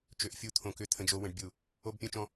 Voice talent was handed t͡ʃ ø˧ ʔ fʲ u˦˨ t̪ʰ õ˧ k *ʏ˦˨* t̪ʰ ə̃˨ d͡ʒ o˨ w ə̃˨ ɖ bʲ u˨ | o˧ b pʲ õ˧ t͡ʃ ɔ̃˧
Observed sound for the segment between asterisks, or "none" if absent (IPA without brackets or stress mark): ʏ˦˨